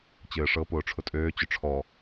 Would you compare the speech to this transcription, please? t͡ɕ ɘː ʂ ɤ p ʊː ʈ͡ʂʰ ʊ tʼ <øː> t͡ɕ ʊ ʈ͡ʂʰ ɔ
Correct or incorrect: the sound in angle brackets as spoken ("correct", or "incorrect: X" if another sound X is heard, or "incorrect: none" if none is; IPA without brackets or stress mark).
correct